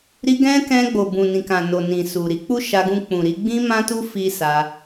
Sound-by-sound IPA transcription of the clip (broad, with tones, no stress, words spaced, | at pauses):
ɾi˧ ɡɛ̃˦kɛ̃˧ ɡ͡bo˨bũ˨ nĩ˨kã˨no˨ nĩ˨su˨ɾi˨˦ k͡pu˦ʃa˧ɡũ˧ k͡pũ˨ɾi˨˦ ɡ͡bĩ˦mã˦tu˦ fi˦sa˧